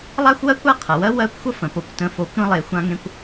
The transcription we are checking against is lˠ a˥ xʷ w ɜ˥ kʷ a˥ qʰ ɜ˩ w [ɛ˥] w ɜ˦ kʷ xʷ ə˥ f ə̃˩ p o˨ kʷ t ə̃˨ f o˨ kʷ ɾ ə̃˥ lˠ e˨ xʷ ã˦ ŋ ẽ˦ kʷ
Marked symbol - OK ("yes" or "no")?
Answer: no